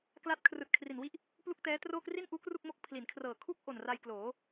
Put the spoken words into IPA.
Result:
k l a˦˥ t̚ kʰ r ɯː˨˩ t̚ kʰ r i˨˩ n w i˥˩ ʔ | p l u˥˩ k̚ t ɛː˦˥ t r oː˥˩ k r i˥˩ n ʔ uː˦˥ k r u˥˩ k̚ m o˥˩ k̚ pʰ l i˩˦ n kʰ r ɤː˨˩ kʰ u˥˩ k̚ ʔ o˨˩ n r a˧ j k l oː˩˦

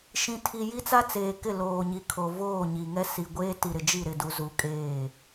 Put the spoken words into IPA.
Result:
ʃ ĩ˨ tʰ i˨ j i˦ t͡s a˦ t͡s eː˨ k ɪ˦˨ l oː˨ ɲ i˨ kʰ o˨ v oː˦˨ ɲ i˨ ŋ ɛ˦ s i˨ ɡʷ eː˦ t i˨ ɾ ɪ˨ d͡ʒ i˦˨ ɾ ɪ˨ d u˨ z u˨˦ kʼ eː˦˨

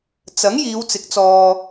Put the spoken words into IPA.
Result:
t͡s ɐ˨˥ ŋ j iː˨˧ w t͡s ɪ˨˥ k̚ t͡s ɔː˧

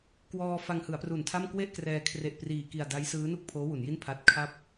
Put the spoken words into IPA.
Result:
k w ɔː˧ f a˧ ŋ h ɯ˩˦ a̯ p r u˨˩ n tʰ a˥˩ m k w e˥˩ ʔ k r ɛː˧ kʰ r e˨˩ ʔ p r iː˨˩ k i˨˩ a̯ d a˦˥ j s ɯː˦˥ n u˥˩ k̚ pʰ oː˦˥ w u˩˦ n j i˥˩ n pʰ a˦˥ t̚ kʰ a˥˩ p̚

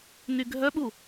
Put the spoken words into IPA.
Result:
n y ɡʱ œ ɓ u

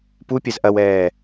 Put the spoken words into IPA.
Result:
p u pʲ ɐ z ʔ ɐ w ɛː

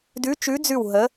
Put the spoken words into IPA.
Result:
d ʉ˨˦ t͡ʃ ʉ˨˦ d͡z ʉ˧˩ w ɦ ə˨˦

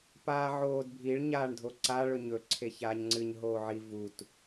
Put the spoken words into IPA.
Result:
p aː ʕ oː d bʱ i ɭ ɲ aː ɳ dʱ o ǀ a ɭ ɵ ɲ ɵ ǀʰ e ç aː ɲ ŋ͡ǀ ɨ ɲ ɦ oː ʕ i v u t

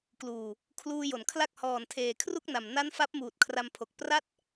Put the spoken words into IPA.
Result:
k l uː˨˩ | kʰ l uː˧ j o˩˦ n kʰ l a˥˩ k̚ h ɔː˨˩ n tʰ eː˨˩ kʰ r u˥˩ k̚ n a˨˩ m n a˦˥ n f a˦˥ p̚ m uː˨˩ t̚ kʰ r a˧ m pʰ o˨˩ k̚ p r a˥˩ t̚

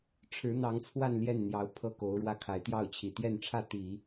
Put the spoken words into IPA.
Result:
ʈ͡ʂʰ ɻ̩˧˥ n̪ ɑ˧˥ ŋ t͡sʰ w a˥˧ n l j ɛ˥˩ n n̪ j ɑ˧˥ ʊ̯ pʰ ɤ˥˩ k o˧˥ ʊ̯ ɻ w ä˥˩ kʰ a˧˥ ɪ̯ t̪ j ɑ˥˩ ʊ̯ t͡ɕʰ i˨˩ t̪ j ɛ˥˧ n ʈ͡ʂʰ ä˥˩ t̪ i˨˩˦

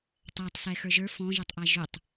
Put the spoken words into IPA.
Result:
tˤ æ tˤ s ɛ x ə˞ ʒ ə˞ f ɔ̃ ʒ ɛ tˤ ʔ æ ʒ ʏ tˤ

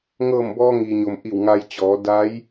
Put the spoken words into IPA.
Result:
ŋ ɤː˧˩ m b ɔː˧ ŋ iː˩ ɲ o˩ m ʔ i˧˩ w ŋ a˧ j t͡ɕ ɔː˩˧ d a˧˥ j

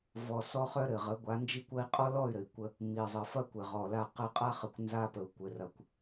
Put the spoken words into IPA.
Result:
v ɔ˨ s ɔ˦ χ œ˦ ɾ ɘ˨ ʁ ə˨˦ ɡʷ a˨˦ n d͡ʒ i˦ kʷ ɐ˦ i̯ qʼ ɔ˦ l ɔ˦˨ y̯ ɾ ɘ˨ i̯ kʷ ə˦ | m i˨ zˤ ɘ˨ f ɐ˦ kʷ ɘ˨ ʁ ɔ˨ l a˦˨ q ə˦˨ qʼ a˦ χ ə˨ kʷ n z a˦ p ə˨ u̯ kʷ ɘ˨ r ɐ˨ kʷ

